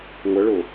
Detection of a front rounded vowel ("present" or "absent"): absent